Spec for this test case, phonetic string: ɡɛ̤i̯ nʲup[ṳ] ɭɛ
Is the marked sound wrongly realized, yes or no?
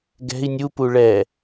yes